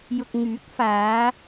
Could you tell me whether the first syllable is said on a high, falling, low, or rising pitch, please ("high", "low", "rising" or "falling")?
low